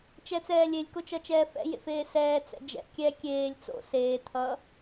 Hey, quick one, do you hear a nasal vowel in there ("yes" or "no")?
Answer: no